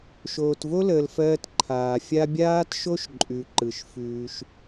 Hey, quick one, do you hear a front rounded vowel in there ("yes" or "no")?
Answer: no